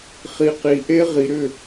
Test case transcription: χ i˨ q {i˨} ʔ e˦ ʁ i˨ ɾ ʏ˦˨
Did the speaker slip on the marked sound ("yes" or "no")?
no